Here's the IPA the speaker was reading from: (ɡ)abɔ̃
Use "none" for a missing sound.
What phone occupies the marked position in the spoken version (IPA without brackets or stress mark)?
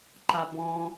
ǃ